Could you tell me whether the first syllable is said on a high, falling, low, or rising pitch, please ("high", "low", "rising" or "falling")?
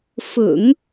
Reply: low